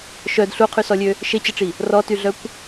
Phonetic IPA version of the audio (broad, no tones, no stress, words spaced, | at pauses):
ʃœd ɬuqʰysɔlʲø | ʃet͡ɕəʈ͡ʂi | rɔtyɮœkʷ